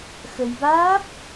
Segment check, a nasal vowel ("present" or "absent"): absent